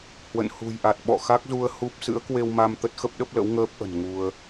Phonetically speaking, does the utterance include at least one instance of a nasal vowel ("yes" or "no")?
no